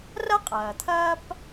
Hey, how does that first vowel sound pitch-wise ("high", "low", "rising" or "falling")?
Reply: high